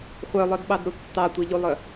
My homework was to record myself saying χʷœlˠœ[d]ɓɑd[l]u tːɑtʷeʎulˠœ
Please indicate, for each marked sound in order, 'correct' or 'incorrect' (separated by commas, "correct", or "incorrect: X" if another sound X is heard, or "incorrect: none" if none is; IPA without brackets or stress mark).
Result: correct, incorrect: ɾ